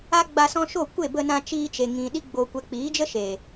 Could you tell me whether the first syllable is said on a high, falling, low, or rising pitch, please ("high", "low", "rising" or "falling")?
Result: high